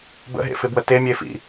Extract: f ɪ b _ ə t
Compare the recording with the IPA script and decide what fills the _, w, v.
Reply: w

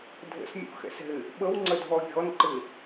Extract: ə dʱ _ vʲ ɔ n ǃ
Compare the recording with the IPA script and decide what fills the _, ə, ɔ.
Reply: ɔ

